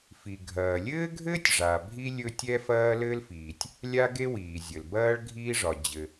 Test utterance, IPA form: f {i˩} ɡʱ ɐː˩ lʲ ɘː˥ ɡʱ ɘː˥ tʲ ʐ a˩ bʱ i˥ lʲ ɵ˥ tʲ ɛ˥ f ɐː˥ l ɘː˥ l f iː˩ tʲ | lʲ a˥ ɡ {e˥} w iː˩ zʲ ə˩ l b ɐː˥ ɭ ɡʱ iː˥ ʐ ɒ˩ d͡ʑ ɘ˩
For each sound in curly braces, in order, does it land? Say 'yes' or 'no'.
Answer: yes, yes

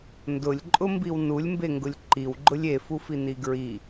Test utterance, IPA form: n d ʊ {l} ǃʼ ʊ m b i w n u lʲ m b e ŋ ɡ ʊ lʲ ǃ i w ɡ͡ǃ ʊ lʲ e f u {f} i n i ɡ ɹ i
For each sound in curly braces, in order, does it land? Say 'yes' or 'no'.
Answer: no, yes

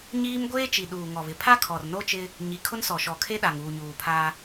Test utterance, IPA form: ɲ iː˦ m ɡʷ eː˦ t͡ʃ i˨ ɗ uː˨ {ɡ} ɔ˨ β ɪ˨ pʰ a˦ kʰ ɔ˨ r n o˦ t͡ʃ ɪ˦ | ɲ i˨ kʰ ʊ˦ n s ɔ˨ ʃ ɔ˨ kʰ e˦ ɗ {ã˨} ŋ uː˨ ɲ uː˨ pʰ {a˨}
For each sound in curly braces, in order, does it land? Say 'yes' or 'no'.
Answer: no, no, no

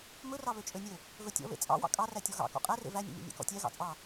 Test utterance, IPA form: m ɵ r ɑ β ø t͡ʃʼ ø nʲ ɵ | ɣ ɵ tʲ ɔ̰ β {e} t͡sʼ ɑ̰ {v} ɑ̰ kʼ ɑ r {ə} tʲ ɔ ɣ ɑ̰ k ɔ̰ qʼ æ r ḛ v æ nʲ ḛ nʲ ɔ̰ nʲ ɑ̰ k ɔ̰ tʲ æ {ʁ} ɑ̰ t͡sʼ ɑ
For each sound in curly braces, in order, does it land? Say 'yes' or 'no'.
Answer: no, no, no, no

